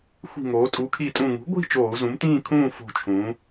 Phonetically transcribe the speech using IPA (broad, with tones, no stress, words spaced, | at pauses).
xʷi̤˧˩ ŋoː˩˧tʼu˩˥kʰi˧˩tʼũ˧˩ ŋṳ˩˥ɡʷi̤˥˨ t͡ʃoː˧˩˧u̯zũ˩˥mtĩː˥˨kʰũː˥˨ fo̤˧˩t͡ʃʰũː˩˧